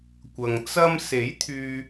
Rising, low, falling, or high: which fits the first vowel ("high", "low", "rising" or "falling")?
low